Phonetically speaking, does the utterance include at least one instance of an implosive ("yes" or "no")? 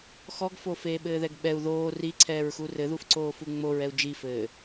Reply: yes